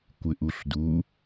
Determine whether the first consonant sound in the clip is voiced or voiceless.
voiceless